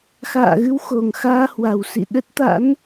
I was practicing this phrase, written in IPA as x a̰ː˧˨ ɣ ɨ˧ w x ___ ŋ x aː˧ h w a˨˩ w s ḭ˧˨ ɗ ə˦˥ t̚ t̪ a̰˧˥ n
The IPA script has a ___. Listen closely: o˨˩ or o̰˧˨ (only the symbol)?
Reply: o˨˩